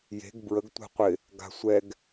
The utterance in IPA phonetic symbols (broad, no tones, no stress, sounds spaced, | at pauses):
j e̤ ɡ b ɹ ə ɡ tʷ ɛ̤ qʷ ɪ | ɡ a̤ sʷ ɛ ɡ